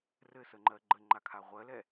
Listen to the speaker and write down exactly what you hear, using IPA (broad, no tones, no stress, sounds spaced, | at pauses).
r ɘ s ə ŋ͡ǃ ɜ ɡ͡ǃ ə ŋ͡ǃ a kʰ a ʁʷ ɜ l ɛ